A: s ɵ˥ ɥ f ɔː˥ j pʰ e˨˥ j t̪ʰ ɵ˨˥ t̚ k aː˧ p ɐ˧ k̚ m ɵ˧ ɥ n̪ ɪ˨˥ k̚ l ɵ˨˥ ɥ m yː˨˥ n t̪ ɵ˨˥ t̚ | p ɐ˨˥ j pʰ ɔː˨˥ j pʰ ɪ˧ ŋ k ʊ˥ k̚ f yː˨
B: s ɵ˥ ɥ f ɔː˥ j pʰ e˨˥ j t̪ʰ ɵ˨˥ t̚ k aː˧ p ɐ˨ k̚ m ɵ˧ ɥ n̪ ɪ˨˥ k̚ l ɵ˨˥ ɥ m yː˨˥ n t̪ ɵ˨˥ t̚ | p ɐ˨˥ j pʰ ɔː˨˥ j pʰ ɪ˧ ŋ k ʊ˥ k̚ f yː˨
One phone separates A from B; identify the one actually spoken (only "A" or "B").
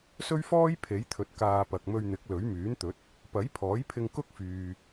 B